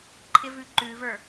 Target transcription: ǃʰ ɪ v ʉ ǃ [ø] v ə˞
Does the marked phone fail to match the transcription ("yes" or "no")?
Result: yes